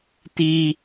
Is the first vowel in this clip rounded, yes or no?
no